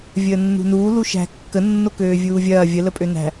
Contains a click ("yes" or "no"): no